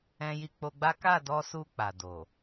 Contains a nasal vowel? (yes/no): yes